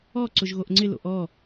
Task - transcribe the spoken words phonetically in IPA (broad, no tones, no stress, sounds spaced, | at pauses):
ɔ ǀ ʊ ʒ ɣ o ʔ ŋ͡ǀ ɪ l o̰ ʔ ɔ